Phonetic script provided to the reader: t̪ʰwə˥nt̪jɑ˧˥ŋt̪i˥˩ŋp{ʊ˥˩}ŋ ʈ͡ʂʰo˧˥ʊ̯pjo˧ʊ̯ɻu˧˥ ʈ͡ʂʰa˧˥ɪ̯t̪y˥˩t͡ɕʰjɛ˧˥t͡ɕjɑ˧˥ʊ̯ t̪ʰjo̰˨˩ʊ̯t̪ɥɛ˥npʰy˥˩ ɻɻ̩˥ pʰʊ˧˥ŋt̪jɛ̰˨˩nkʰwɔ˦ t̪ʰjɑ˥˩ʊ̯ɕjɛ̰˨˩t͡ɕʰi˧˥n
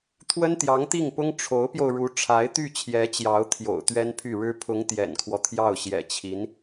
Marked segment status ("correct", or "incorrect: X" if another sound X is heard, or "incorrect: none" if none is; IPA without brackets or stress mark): incorrect: ʊ˥